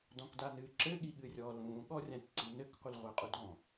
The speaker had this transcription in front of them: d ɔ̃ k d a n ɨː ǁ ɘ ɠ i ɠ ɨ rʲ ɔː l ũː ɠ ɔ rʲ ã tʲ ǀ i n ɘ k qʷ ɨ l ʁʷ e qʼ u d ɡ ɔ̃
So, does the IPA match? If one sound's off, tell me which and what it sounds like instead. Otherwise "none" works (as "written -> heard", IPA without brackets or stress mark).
none